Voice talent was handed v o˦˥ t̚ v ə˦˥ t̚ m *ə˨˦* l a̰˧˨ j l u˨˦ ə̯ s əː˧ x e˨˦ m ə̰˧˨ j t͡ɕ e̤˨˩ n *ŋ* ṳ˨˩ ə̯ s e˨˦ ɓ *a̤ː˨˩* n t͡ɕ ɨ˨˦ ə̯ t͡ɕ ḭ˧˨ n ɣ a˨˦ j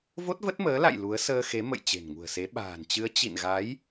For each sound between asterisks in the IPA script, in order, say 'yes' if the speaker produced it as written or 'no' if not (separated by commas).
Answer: no, yes, yes